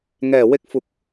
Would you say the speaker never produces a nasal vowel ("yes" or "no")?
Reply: yes